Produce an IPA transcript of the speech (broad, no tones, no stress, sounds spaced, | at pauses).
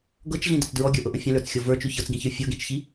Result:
ɡ ɤ t͡ʃ ɮ ĩ d ə t͡s d ɹ ɔ ɡʲ ə˞ ʔ ɤ ʔ ə̃ fʲ ə̃ l ə˞ t͡s xʲ ɤ v ə˞ t͡ʃ ʉ ç ɤ t͡s ɡ ĩ ç ə˞ fʲ ɤ ɡ ĩ t͡ʃ ç i